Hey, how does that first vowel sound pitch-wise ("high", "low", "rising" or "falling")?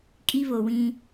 high